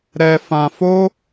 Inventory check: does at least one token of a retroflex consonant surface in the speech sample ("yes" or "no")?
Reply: no